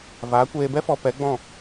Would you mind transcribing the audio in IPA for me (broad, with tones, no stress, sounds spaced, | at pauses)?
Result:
v aː˨˦ kʷ eː˧ b ɛ˦ f ɔ˧ p ɛ˨˦ ɡ͡b ɔ̃˦˨